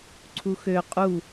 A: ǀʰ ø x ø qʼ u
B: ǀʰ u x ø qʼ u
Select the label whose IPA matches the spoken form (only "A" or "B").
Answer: B